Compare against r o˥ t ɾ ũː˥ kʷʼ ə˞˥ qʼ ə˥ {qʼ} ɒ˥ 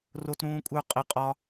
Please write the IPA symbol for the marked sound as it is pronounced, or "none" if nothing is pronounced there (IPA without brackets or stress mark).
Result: qʼ